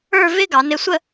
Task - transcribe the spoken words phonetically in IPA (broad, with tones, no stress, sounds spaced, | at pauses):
ə˞˥˧ v ɪ˥ ɡ ɑ˩˧ n ɪ˧ sʷ ə˥˧